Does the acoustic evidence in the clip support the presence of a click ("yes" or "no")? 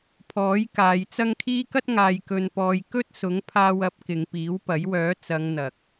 no